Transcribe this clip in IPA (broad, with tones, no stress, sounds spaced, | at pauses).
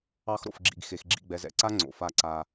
ɑ˦ x ɾ o̰˧ f ɡ͡ǁ ḭ˧ ɡ x e˧ x ɡ͡ǁ ḭ˦˨ ɡ͡b ɛ˧ z ɛ̰˧ ǀ a˦ ŋ͡ǀ o̰˧ f a˦˨ ǀ a˧